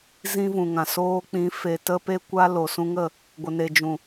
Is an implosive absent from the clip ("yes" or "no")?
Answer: yes